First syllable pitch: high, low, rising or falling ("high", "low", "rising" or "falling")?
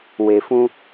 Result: low